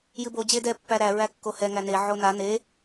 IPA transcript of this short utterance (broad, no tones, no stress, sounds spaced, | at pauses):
j ɨ b o d͡ʑ e d ɛ pː æ ɾ æ ɹ æ kː o h ɛ ŋ æ n e ʕ o n a n e